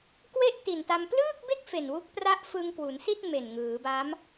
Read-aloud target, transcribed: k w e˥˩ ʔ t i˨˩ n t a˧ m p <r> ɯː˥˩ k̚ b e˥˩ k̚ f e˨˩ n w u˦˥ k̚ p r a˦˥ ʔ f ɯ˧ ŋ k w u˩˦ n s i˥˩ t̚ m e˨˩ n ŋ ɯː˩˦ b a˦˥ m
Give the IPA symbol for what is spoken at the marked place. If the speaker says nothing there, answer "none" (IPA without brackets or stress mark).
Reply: l